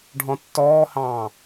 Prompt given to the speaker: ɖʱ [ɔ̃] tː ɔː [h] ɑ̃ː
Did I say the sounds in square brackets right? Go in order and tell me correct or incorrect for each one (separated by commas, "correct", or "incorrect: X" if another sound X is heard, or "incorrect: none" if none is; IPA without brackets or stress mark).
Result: correct, correct